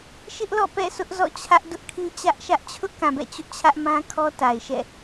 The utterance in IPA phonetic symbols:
ʃ ɪ˦ ʔ l ɔ̰˦˨ p ɛ̰˦˨ s ʊ˦ ʔ z ɔ̰˦˨ t͡ɕʰ ä˦ ʔ d ʊ˦ ʔ kʰ ĩ˦ t͡ɕ ä˦ ʔ ʃ ä˦ ʔ t͡ɕʰ ʊ˦ ʔ k ã˨ b ɛ̰˦˨ t͡ɕ ʊ˦ ʔ t͡ɕʰ ä˦ ʔ m ã˦ kʰ ɔ˦ t a˨ ɪ̯ ʃ ɛ̰˦˨

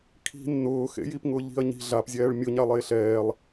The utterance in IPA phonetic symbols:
kʰ i̤ nː ʊː x ḛ j i p ŋ ʊ ʎ i̤ ɐ̯ ɲ i̤ ɮ a p zʲ ɛː ɭ mʲ ʊ ɲ a lˠ eː ɬ ɛː lˠ

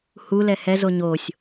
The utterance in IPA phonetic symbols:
h u l ɛ h ɛ z o ɲ o sʲ

